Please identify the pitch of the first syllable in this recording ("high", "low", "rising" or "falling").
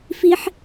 high